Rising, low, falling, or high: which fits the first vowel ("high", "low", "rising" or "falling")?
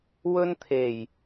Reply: high